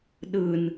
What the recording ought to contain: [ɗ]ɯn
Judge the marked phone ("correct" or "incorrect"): correct